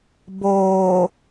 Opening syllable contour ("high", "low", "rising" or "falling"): low